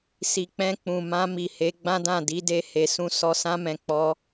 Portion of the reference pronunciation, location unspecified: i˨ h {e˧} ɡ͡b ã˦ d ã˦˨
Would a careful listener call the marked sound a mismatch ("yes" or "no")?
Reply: yes